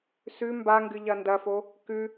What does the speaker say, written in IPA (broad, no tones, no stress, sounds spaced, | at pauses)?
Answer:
s ʉ m b a ŋ ɡ ɨ ʎ ɐ n d ɐ f o | k ʉ